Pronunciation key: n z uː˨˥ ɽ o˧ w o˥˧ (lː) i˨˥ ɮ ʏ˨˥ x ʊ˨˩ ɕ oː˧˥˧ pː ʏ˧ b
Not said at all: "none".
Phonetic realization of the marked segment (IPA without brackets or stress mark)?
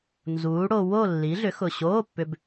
lː